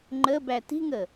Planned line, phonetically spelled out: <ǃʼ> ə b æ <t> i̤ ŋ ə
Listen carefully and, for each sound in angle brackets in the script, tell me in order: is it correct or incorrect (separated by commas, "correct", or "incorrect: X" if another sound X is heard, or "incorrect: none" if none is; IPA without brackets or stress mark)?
incorrect: ŋ͡ǃ, correct